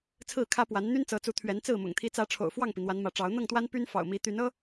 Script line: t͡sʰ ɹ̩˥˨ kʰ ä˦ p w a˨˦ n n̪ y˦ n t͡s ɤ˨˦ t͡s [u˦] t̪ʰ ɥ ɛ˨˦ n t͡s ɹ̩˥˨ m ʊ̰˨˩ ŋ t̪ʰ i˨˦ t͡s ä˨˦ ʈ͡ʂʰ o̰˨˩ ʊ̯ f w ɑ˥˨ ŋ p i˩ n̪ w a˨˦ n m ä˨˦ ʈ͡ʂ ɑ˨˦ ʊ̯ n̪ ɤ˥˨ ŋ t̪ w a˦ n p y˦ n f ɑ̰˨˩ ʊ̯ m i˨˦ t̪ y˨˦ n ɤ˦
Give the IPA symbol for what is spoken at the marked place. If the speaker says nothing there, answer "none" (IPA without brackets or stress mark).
u˨˦